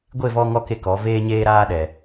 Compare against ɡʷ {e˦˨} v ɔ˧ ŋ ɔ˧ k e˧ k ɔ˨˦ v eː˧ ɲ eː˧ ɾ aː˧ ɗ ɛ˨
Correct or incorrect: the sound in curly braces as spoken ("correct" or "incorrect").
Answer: correct